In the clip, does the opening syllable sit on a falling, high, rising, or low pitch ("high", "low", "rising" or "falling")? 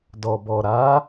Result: low